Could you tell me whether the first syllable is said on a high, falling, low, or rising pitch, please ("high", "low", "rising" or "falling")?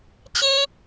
high